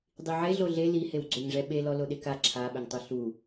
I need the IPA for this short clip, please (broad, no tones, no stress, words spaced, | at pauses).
dˤiʕe ɮoɮe lihew ɡ͡ǀoɲʐɛɓelɔ loɗeka ǁʰaɓɘŋtˤo ɬu